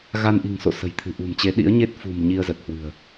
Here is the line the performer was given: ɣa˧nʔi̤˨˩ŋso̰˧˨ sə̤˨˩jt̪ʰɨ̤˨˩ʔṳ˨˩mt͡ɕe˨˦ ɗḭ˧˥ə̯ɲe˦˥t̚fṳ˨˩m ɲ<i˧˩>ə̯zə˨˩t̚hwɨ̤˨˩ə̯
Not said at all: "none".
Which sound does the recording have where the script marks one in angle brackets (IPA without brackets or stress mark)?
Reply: i˧